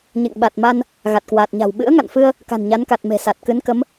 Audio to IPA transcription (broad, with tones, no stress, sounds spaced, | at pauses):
ɲ ḛ˧˨ ŋ ɓ a˨˩ t̚ m a˧ n | ɣ a˨˩ t̚ k w aː˨˩ t̚ ɲ a̤˨˩ w ɓ ɨ̰˧˥ ə̯ ŋ a̰˧˨ n f ɨ˧ ə̯ | k a̤˨˩ n ɲ a˨˦ n k a˨˩ t̚ m e̤˨˩ s a˨˩ t̚ k ɨ˨˦ n k ə˨˦ m